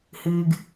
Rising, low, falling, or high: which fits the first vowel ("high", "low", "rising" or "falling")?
low